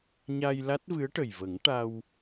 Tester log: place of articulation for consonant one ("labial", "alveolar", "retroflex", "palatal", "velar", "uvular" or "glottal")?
palatal